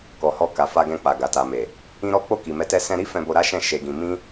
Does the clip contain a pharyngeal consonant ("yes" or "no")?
no